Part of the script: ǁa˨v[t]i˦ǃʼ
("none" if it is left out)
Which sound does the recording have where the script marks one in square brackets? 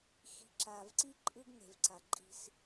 ǀ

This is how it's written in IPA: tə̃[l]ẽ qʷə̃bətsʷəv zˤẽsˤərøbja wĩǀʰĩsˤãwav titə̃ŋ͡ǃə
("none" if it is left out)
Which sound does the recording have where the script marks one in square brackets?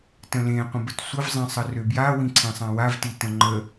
l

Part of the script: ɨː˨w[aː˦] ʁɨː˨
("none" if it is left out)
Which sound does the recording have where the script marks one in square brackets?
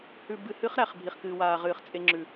aː˨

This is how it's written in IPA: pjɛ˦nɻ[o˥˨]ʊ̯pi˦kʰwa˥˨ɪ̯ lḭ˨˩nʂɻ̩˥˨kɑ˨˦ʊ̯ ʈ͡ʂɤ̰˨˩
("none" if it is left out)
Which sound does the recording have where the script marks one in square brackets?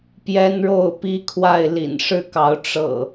o˥˨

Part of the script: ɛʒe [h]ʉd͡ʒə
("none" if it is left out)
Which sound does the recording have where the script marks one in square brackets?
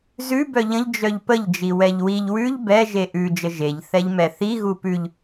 ʔ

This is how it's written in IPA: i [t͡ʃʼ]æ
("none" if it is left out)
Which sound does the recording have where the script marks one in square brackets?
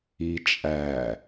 t͡ʃʼ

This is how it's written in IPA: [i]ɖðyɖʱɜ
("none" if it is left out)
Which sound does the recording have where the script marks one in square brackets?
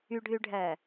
y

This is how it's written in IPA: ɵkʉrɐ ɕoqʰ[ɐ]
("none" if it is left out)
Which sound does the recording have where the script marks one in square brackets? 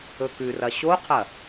ɐ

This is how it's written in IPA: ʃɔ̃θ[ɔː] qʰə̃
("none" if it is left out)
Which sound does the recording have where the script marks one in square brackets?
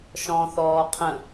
ɔː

